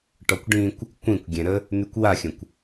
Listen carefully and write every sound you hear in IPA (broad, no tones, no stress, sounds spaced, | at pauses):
ʈ ɔ kʷ ɖ ĩ kʷ | kʷ ĩ kʷ ɡʲ ɛ̃ ɾ ə | n̪ y kʷ w a xʲ ə̃ kʷ